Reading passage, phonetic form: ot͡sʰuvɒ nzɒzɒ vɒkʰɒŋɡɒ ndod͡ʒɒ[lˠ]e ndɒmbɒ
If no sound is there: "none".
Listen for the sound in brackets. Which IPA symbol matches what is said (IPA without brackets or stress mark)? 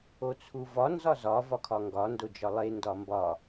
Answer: lˠ